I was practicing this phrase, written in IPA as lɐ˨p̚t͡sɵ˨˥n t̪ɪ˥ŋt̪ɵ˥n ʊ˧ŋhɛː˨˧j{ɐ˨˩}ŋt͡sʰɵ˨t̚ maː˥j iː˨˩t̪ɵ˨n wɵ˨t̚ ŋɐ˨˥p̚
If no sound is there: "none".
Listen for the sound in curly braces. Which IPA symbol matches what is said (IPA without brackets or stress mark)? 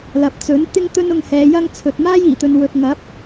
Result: ɐ˥